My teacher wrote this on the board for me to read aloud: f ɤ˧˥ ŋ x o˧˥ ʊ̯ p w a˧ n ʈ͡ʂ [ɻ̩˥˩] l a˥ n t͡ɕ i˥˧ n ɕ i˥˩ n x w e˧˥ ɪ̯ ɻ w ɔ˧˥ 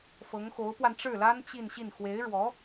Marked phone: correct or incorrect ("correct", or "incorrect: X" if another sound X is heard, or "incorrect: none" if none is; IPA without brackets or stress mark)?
correct